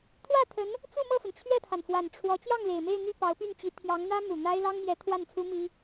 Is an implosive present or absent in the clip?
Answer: absent